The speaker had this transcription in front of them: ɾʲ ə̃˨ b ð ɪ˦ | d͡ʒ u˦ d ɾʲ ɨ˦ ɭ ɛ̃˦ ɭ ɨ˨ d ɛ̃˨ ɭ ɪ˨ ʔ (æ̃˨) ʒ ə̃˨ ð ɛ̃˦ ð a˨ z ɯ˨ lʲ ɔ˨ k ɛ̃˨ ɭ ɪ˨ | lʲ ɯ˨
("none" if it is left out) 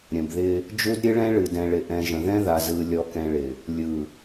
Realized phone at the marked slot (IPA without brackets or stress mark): ɛ̃˨